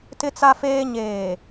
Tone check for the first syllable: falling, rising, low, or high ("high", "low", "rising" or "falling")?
high